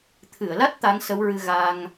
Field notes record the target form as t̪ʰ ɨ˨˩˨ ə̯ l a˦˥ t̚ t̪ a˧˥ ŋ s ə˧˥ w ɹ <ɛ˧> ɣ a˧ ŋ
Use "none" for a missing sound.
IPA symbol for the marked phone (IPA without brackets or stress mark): ɨ˧